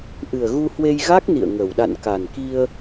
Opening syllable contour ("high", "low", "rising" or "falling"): low